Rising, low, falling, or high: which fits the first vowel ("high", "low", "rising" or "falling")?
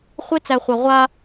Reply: high